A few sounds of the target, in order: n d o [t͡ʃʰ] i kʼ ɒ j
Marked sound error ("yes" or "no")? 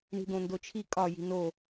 no